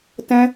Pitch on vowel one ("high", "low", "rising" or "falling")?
high